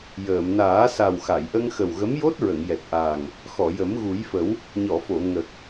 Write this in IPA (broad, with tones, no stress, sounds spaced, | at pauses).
j əː˨˩˨ m n aː˨˩˦ s a˨˩ w x a˨˩˨ j ʔ ə˧ ŋ x ə˨˩ w ɣ ə˧˥ m j o˦˥ t̚ ɹ ə˨˩˨ ŋ j ɛ˨˩ t̚ ʔ aː˨˩ ŋ | x ɔ˨˩˨ j ə˨˩˦ m ɣ u˨˩˦ j f ə˨˩˦ w | ɲ ɔ˨˩˨ f o˨˩˨ ŋ ə˨˩ k̚